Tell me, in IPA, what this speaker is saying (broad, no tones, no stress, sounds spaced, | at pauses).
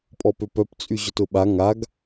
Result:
pʼ ɔ p ø p œ p t͡sʼ y ʑ ʊ t ʊ ɓ a ŋ a ɡ